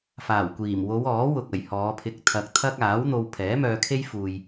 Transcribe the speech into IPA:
f aː˨˩ w kʷ iː˨˩ m w o˨˧ w ɔː˨˥ w ʊ˨ k̚ ɐ˨˩ j h ɔː˨˧ pʰ ɪ˧ k̚ t̪ʰ ɐ˧ k̚ t̪ʰ ɐ˥ k̚ aː˨˥ w n̪ o˧ w pʰ ɛː˨˥ m œː˧ kʰ e˥ j f uː˨ j

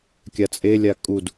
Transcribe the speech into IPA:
kʲ a t͡sʼ e lʲ a kʼ u d

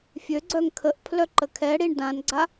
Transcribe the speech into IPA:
fʲ ø ɡ͡ǀ œ ŋ kʰ ə ʔ pʰ l œ ǃ ə kʰ ɛ ɽ i ɳ d ã n ɡ͡ǀ a

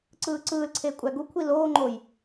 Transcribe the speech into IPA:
ǀ ɯː ǀ ɯː l ǀʰ eː kʷʼ æ ɡ u kʷʰ i l oː ŋ͡ǃ o j

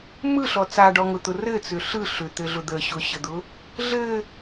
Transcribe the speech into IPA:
m ɯ ɬ ɔ t͡s a ɖ ɔ ŋ ʊ t̪ ʊ r ɘ t͡s ʏ ɬ ɯ ɬ ʏ t̪ ɘ ɮ ʊ d̪ ə ɕ ʊ ɕ ə d̪ ʊ | ɮ ɘ

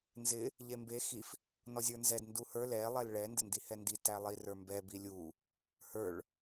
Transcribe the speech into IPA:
n z ɪ | ʎ e m b e x i f | n ɔ zʲ ə˞ n z ɛ d n d u h ə˞ l ɛ lˠ ɛ l ɭ ɛ n d ɪ n d i h ɛ n d i t æ lˠ i r ə˞ m b ɛ b i lʲ u | h ə˞ ɭ

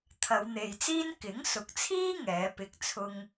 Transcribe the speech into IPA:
t̪ʰ ɐ˨˧ w n̪ e˨ j t͡s iː˥ n k ɪ˨˥ ŋ s ʊ˨ k̚ t͡sʰ iː˥ ŋ ɛː˨˥ p ɪ˧ k̚ t͡sʰ ʊ˥ ŋ

